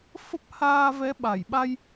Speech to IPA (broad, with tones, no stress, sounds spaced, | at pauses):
f ə˦˥ p̚ h aː˧ v ɛ˨˦ ɓ a˧˩ j ɓ a˧ j